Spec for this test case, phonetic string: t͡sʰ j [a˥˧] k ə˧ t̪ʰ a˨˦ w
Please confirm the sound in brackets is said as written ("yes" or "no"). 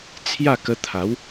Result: yes